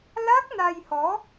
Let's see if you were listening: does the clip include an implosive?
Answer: no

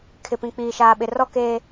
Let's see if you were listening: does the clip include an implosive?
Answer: yes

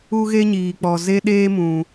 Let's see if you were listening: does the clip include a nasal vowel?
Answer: yes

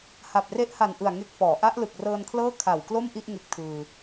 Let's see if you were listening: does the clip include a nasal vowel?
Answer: no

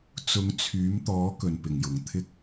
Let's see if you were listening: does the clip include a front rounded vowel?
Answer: yes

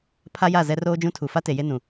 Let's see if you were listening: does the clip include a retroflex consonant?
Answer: no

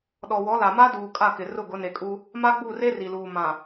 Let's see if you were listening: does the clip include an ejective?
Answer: yes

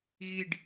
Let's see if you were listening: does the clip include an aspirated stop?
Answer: no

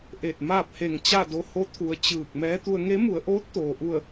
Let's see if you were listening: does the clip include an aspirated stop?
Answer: yes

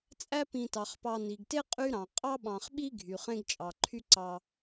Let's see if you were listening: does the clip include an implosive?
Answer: yes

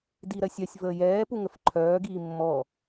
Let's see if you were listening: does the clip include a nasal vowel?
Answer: no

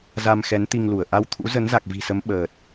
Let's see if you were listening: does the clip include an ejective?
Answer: no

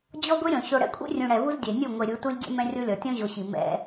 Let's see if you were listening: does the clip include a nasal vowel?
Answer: yes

